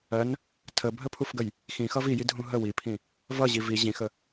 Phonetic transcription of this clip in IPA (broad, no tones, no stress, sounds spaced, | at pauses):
ɜ n | tʰ ə bʱ ə pʰ u f ɡ ə j | x ĩ x ʌ v i j i dʱ ũ ɦ ə w i pʰ ĩ | v ʌ ʑ i v i ʑ ĩ x ə